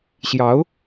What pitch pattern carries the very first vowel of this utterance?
rising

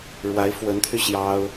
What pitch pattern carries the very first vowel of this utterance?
rising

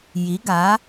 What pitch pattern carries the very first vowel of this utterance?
rising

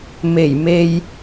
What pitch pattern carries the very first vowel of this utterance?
low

